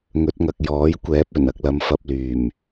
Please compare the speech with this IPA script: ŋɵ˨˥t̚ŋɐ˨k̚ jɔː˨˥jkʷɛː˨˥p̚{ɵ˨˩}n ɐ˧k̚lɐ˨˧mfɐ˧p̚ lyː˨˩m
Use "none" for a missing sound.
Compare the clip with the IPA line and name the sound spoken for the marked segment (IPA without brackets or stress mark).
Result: ɵ˨˩